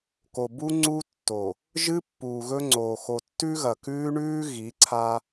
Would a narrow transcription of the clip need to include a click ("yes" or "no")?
yes